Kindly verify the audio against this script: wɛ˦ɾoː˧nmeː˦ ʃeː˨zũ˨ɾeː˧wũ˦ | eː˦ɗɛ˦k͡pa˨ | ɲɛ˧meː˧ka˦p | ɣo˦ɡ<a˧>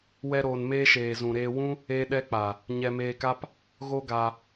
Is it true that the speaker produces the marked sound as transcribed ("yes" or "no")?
yes